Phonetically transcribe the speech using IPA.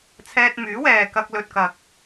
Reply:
t͡sʰɛː˧t̚myː˨˥wɛː˨ kɐ˧k̚lɵ˨t̚kɐ˨k̚

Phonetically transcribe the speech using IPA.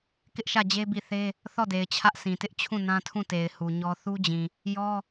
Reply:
kɪ˦ʔʃä˦˨d͡ʑe˦ bi˦˨θe˦ | θɔ˦˨de˨ɪ̯ t͡ɕʰä˦ʔsĩ˨tɪ˦ʔ t͡ɕʰũ˦˨ nã˦tʰũ˦˨te˨ɪ̯ hu˨ɲɔ˦ θu˦d͡ʑĩ˨ | jɔ˦

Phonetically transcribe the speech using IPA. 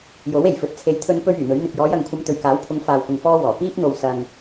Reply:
jo˨˥w e˨˩jfɵ˨˥t̚t͡sʰe˨˧jt̪ʰɵ˧n pɵ˥ɥyː˨˩n̪ɵ˨˥ɥ n̪ɪ˨k̚jɔː˨˧jɐ˨ŋkʷʰɐ˧m t̪ɵ˨ɥkaː˨˥wpʰʊ˨˧ŋ faː˨wkʊ˨ŋ fɔː˥wɔː˨˩ piː˥p̚n̪o˨w sɐ˨ŋ

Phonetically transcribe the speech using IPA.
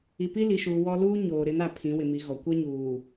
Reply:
i˨pi˦li˨ʃuː˨ wɔ˦ luː˦ɲoː˨ ɾɪ˨˦na˨ pʰĩ˨˦wɪ˨mi˨˦ ɣɔ˨ kʷɛ˦ɲuː˨

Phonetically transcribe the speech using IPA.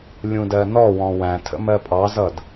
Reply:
lʲũdɜnɔwɔ̃ wæ̃tʰə̰ mɜpʼɑzʌd

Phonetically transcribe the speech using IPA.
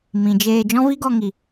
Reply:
mĩ˨d͡ʒeː˧ d͡ʒɔ̃˦vi˦ɡɔ˧ŋi˨

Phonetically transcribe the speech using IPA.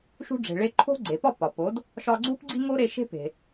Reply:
ʃṳ˧ɖ͡ʐe̤˩ɭe˧ ǃʰo̤˥ ɡ͡ǀe˩pɒ˥˩ pɒ˩ po˩˥d | ʃɒ˧ɡ͡ǀu˥p ɡ͡ǀi˥ŋo˥ɾe˧ʃe̤˥ pe̤˩

